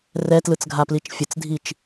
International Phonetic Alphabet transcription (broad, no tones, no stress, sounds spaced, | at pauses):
r ɛ t l ɯ t͡s ɡʱ a p l i t͡ʃ fʲ ə t͡s dʱ i t͡ʃ